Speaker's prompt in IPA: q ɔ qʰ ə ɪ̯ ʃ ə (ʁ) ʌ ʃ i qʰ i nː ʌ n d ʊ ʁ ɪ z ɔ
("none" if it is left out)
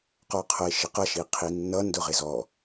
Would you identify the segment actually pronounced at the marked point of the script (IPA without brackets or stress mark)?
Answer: q